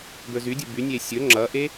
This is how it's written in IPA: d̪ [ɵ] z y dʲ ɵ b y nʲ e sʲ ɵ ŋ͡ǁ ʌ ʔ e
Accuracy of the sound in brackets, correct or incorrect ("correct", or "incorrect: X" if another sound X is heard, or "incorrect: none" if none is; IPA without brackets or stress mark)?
correct